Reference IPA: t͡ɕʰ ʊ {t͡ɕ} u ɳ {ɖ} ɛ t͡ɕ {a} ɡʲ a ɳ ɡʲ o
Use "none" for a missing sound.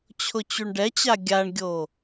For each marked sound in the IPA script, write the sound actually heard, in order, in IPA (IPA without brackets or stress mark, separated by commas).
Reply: t͡ɕ, ɖ, a